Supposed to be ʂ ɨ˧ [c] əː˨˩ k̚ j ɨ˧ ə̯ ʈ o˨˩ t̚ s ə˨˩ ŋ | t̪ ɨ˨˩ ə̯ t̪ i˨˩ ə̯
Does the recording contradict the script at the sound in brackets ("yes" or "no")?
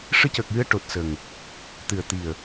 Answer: no